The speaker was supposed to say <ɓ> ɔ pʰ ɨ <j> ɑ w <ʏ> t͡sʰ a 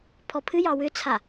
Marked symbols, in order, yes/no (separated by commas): no, yes, yes